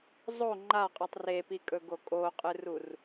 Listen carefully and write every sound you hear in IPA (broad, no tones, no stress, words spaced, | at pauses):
zˤo ŋ͡ǃaqʼɨtˤ repikʼɵɡo kʼoqʼɨrur